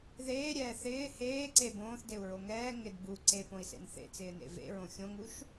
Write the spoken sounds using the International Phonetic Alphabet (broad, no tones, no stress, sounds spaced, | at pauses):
ð eː ɾʲ ɛː θ ɪː h eː ǀ e b õː θ d e u̯ ɹ o ŋ ɛː ŋ ɪ d b u ǀ e p õ i̯ s ḛ n θ ḛ t͡s ɪː n ḛ v ḛ ɹ õ xʲ õ ŋ u ʃ